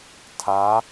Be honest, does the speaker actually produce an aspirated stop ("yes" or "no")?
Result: yes